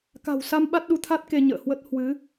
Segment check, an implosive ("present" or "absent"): present